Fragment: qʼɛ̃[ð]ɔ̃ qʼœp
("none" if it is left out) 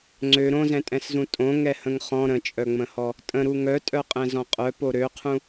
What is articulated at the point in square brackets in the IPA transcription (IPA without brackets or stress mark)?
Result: z